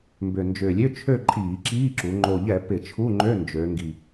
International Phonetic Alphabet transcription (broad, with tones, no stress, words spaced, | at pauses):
mbʏ˨˩ nd͡ʒʏː˨˩lʲø˧˥˧ t͡ʃʰø˥˧ǃʼiː˧˩˧ǁiː˧˥˧ǁu˩˧ ŋ͡ǃo˨˩ʎɛ˧˩˧ pɪ˧˩˧t͡ʃʰu˧˥˧ŋ͡ǃø˧˥˧ nd͡ʒø˩˧ŋɡi˨˩